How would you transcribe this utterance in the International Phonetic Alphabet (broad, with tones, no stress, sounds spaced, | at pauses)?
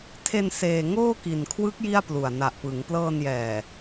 tʰ e˧ n s eː˧ ŋ oː˥˩ k i˨˩ n kʰ w ɯ˦˥ k̚ j i˥˩ a̯ p l u˨˩ a̯ n a˨˩ ʔ p ɯ˩˦ ŋ p l ɤː˧ n j ɛː˨˩